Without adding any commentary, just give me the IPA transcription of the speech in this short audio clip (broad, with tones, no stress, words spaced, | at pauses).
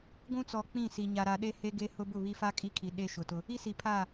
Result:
ɡʷũ˦t͡sɔ˨ k͡pĩ˦˨si˨ ɲa˨ɾa˨ɗe˦ he˦ɡe˦ hʊ˦ bʊ˦˨βi˦fa˦ kʼi˦kʰi˨ ɗe˦ ʃʊ˨tʊ˦ | i˦si˨pʰa˦˨